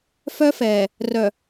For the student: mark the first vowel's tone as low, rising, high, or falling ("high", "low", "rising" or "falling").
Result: high